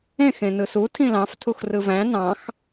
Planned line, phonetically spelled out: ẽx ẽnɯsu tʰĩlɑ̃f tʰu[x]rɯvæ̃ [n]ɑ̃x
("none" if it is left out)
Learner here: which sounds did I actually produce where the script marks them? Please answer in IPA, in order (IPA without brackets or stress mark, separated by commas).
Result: x, n